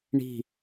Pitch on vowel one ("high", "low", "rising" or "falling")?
falling